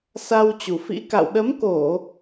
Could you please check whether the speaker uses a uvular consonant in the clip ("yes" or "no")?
no